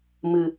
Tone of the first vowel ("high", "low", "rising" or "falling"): low